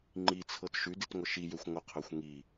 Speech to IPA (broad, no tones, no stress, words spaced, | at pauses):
ŋ͡ǃit͡sʰɤt ʃʉditŋʷə ʃijøxʷ ŋʷəqʰøxʷ ŋi